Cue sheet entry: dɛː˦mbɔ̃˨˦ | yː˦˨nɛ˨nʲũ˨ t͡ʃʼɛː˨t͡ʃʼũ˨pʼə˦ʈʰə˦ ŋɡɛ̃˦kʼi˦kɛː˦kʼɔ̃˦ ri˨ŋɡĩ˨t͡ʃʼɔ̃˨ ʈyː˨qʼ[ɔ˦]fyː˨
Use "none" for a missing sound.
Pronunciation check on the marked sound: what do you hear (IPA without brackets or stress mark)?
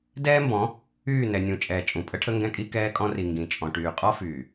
ɔ˦